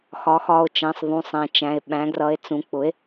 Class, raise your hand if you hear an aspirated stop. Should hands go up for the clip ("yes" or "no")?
no